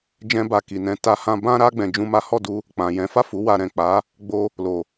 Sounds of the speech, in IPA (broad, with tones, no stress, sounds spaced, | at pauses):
d͡ʒ ɛ̃˧ b a˨ k i˨ n ɛ̃˧ t a˧ h ã˧ b ã˦ ɾ a˦ ɡ͡b ɛ̃˧ d͡ʒ ũ˦ m a˦ h ɔ˦˨ d u˧ | k͡p ã˨ j ɛ̃˨˦ f a˦˨ f u˨˦ w a˧ ɾ ɛ̃˨ k͡p a˨˦ | ɡ͡b o˧ | l o˨